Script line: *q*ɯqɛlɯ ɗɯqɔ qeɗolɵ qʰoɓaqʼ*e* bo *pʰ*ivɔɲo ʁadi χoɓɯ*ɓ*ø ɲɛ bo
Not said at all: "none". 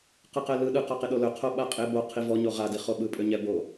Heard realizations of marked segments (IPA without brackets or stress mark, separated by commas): q, e, qʰ, pʼ